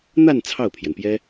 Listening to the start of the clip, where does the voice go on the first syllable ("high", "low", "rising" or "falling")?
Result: falling